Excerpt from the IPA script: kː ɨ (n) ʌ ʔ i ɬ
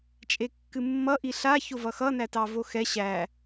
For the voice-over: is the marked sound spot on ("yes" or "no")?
no